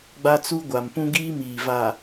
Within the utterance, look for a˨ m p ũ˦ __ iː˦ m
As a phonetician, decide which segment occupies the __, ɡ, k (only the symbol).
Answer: ɡ